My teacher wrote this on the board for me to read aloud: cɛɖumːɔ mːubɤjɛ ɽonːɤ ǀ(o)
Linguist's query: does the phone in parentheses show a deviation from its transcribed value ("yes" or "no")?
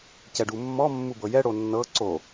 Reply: no